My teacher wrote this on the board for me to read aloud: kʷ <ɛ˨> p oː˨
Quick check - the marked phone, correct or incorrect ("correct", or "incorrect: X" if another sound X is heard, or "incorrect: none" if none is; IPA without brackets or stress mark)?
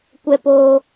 correct